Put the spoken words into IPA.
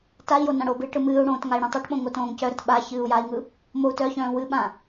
t a i̯ j o n ã ɽ o b ɨː ʈ ɯ m ɨː u̯ ɽ õː t ŋ a i̯ ɽ œ̃ tˤ a ʈ ɓ õ ŋ o t õː ŋ c œ ɾ ə t ɓ a ç ɨː u̯ j a i̯ ŋ ɯ | m o u̯ t œ ç œ̃ː w ɨ ɓ ã

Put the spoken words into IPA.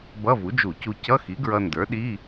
b ʌ˧˥˧ v u˩˥ d͡ʒ u˧˩˧ c u˧ c ʌ˧˥˧ x i˩˥ ɡ ɹ ʌ˧ n d ə˞˩˥ ɗ i˧˥˧

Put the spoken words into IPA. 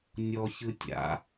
nʲ ɔ ç ɯ tʲ a̰

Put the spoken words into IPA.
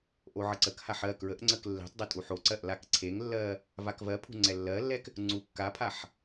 ʔ o ʕ ə ǀ ə k h a ħ ɜ k ɹ ə ʔ ŋ͡ǀ ə k lː e̤ tˤ dˤ o tʼ u ħ o ǀ ɜ ʔ l a k ǀʰ e ŋ lː ɜ | v a k v ɜ pʰ ṳ ŋ͡ǀ ɛ lː ɜ lː ɛ k | ŋ͡ǀ u kː a pʰ a ħ

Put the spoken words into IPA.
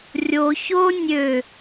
rʲ o ç o nʲ ø

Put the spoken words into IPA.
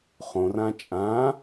χ õ r ã t͡ʃʼ ã

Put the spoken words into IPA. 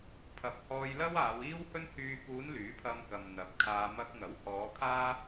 pʰ ɐ˨ p̚ h ɔː˧ j l ɐ˥ w aː˨˧ w iː˥ w h ɵ˥ n h yː˨ k uː˨˧ n l yː˨˥ pʰ ɐ˧ m k ɐ˨ m n̪ ɐ˨˥ p̚ kʰ aː˧ m ɐ˧ k̚ ŋ ɐ˨˥ w h ɔː˨˧ kʰ aː˥

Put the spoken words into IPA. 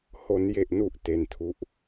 h o˩˦ n j e˨˩ ʔ n u˨˩ ʔ t e˧ n tʰ u˦˥ ʔ

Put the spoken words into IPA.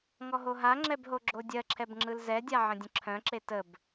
ŋ ɔ ɦ o ɦ a ŋ͡ǁ ɛ b ɦ o ɡ͡ǁ o dʲ ɜ ǁʰ ɛ b ŋ͡ǁ ɯ l z ɛ dʲ a ʕ ə̃ dʲ ə̃ ǁʰ œ̃ ǁ e t ə b

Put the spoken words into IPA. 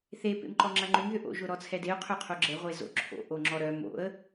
θ e p ḛ m ǃ ɔ ŋ͡ǁ ɐ ŋ͡ǃ ʏ m ð ʏ ʔ o̰ ʒ ʊ ɾ ɔ t͡sʰ ɛ d e ʊ̯ qʰ œ qʰ o ɡ͡ǁ ɛ ʁʷ e z o̰ ǁʰ o̰ ʔ o ŋ͡ǁ ɔ ɾ œ m o̰ ə̯

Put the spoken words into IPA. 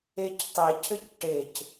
e c tˤ e cʰ ɘ c ʈ e c

